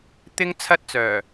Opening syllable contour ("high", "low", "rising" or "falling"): high